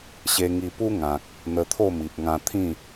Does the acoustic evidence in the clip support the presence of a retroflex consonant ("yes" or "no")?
no